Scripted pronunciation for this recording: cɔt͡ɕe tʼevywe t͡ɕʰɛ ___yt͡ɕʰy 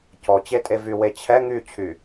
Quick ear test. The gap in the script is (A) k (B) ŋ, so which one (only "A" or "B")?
B